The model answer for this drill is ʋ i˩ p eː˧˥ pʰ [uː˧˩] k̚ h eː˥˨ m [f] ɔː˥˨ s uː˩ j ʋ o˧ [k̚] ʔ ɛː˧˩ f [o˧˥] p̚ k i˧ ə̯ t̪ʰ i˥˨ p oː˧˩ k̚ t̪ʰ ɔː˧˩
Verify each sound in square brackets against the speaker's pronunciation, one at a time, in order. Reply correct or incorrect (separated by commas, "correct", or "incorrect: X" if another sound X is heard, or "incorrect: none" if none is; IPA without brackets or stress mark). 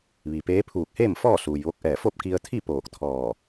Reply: correct, correct, correct, incorrect: o˥˨